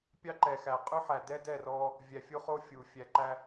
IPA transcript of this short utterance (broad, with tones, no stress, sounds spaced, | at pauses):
pʲ ɑ˦ ǃ ɛ˨ x æ˨ qʼ ʉ˦ ħ æ˨ d ɛ˦ d ɛ˦˨ r ɔ˦ | vʲ æ˨ fʲ u˦ χ o˦ fʲ u˨ fʲ æ˨ ǃ æ˦